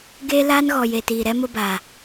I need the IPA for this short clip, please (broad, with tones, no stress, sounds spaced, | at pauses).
ɡ eː˦ l aː˦ n ɣ ɔ˨ j e˨ t iː˨ ɾ ɛ˦ m ʊ˦ b aː˨